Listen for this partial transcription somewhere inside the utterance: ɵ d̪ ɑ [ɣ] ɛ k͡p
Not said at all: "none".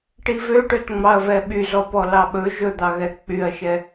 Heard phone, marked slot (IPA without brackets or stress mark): ɣ